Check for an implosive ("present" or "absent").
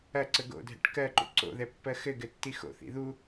absent